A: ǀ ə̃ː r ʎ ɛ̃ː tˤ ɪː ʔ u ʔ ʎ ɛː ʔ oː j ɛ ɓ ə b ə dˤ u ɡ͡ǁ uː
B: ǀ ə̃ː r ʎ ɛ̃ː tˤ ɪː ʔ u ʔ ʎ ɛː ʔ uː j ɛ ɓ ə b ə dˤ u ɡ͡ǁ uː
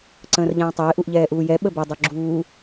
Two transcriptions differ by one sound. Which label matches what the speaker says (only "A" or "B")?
B